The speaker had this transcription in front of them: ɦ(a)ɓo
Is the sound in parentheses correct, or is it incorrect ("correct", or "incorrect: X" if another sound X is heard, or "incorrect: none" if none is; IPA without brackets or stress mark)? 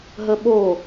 incorrect: ə